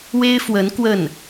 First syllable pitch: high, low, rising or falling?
high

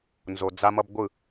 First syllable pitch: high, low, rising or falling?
low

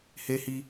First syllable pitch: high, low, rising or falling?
high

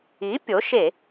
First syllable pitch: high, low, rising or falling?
rising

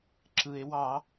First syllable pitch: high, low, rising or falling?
low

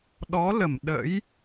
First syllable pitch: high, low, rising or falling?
rising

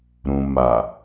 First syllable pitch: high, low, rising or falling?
low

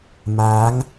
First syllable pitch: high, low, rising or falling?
rising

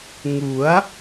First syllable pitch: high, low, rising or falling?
rising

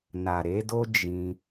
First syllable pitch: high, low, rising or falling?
low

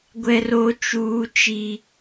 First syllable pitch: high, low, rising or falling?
high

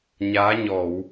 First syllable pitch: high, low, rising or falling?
rising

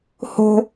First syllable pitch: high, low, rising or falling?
high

